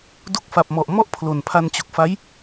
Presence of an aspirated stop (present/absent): present